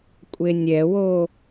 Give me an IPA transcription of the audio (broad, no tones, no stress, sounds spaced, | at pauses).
kʷʼ e nʲ ɛ w o